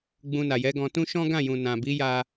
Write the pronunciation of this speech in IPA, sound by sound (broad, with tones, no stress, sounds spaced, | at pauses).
ɡ͡b ũ˧ n a˨ j ɛ˨˦ ɡ ɔ̃˧ t ũ˦ ʃ ɔ̃˦ ɡ ã˦˨ j ũ˨ n ã˨ b i˨˦ j a˧